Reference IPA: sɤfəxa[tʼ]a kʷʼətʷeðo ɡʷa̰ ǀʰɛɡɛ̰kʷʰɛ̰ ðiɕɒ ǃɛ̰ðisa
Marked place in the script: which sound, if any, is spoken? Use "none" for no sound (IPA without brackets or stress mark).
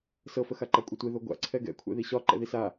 ǃ